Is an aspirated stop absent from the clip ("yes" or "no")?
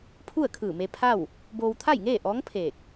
no